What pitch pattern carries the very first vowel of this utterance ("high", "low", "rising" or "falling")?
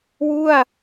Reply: falling